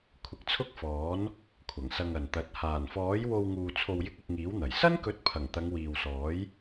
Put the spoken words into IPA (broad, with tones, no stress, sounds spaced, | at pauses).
kʷʰ ɪ˨˥ k̚ t͡sʰ ʊ˥ k̚ f ɔː˨˥ n | kʷʰ ɐ˨˩ ŋ s ɐ˧ ŋ ɐ˨ n t̪ ɐ˨˥ t̚ h aː˨˩ n f ɔː˨˥ j w o˧ w ŋ uː˧ t͡sʰ o˨ w j ɪ˧ k̚ ʊ˧ k̚ ŋ iː˨˥ w n̪ ɐ˨˩ j s ɐ˥ n k ɵ˨˥ t̚ pʰ ɐ˨˩ ŋ t̪ ɐ˨˧ ŋ w iː˨ w s ɔː˨˥ j